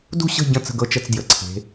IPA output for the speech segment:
d ṳ˦˨ ɕ ə̤˦˨ ɟ ə̃˦˨ t͡s ə̤˦˨ ɡ ɤ˦˨ t͡ʃ ə˦˨ t͡s d j ə˩˧ ǀʰ e̤˩˧

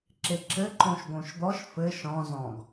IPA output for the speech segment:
ǁ e ǁ ɘ ǃ õ ʃ ɡ õ ʃ d̪ ɔ ʃ f ɘ ʃ ɔ̃ z ɔ̃ ɡ

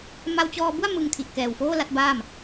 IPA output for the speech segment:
m a˧ w t͡ɕ ɔː˧ b u˥˩ a̯ m ɯ˧ ŋ tʰ i˨˩ ʔ k ɛː˨˩ w f oː˥˩ l a˦˥ t̚ b aː˥˩ m

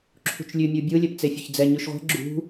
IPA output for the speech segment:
ǁʰ ṳ t͡ʃ lʲ ʉ mʲ u bʲ ɯ lʲ ɛ p t͡s e fʲ ɵ ç d͡z ɛ ɲ ʉ ʃ ʁʷ ɛ̤ ɡ͡ǁ ṳ

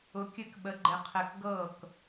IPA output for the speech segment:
ʊ˨˥ kʲ ɘ˥˩ k ɓ ə˨˥ ɡ͡ǃ ɘ˧ qʰ ɘ˧ k ɡ ɤ˥˩ k

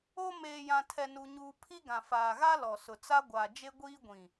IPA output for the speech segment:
o˦ m eː˨ j ã˨ tʰ ɛ˦ n u˦ ɲ uː˦ pʰ i˦ ɡ ã˨ f aː˨ ɣ a˦ l ɔ˨ s ʊ˨ t͡s a˦ ɡʷ a˨ d͡ʒ e˦ ɡʷ iː˦ ɡʷ ĩ˨

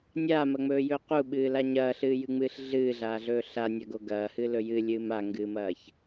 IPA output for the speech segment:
nʲ aː m ɐ ŋ͡m ɵː j ɵː q u ɓ ɨː l a ɲ ɐː ɬ ɨː j ɨ ŋ͡m ɨː ɬ ɮ ɨː ɮ aː ɮ ɵː ɬ a nʲ ɐ ɡ o ɡ ɐː h ɨ l ɵ j ɨ lʲ ɨː m a ŋ ɡ ɨː m ɐː ç

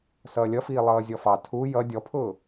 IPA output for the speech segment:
s ʌː lʲ ʌ f iː lˠ ʌː zʲ ɔ f ɑ tʰ u j ʌ dʲ ɔ pʰ ʊː

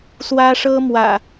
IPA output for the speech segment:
s w ä˦ ʂ ɤ˦ m w ä̰˨˩

